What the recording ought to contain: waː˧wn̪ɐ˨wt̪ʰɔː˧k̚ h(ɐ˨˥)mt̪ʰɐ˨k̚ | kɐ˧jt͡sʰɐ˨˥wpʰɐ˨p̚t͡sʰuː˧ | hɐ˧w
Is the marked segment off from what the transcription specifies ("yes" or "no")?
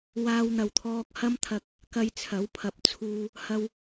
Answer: yes